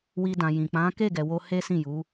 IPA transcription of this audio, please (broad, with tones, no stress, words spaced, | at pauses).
wi˧dã˨ jĩ˨ k͡pã˨˦ke˦˨ɡɛ˨wo˧ he˦sĩ˦˨ju˨˦